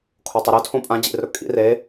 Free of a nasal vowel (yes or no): no